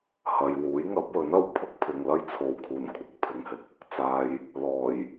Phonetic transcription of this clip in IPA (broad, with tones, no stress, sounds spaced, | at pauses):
h ɐ˨ j w uː˨˥ j ŋ ɐ˨˥ p̚ w ɵ˨˥ n ɐ˨ w pʰ ʊ˥ k̚ pʰ ɪ˨ ŋ l ɐ˥ j t͡sʰ o˨ w kʰ uː˨˩ n kʷʰ ɐ˨˥ k̚ pʰ ɪ˨ ŋ h ɪ˨˥ k̚ | t͡s aː˨ j | l ɔː˨˩ j